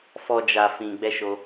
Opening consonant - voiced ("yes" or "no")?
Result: no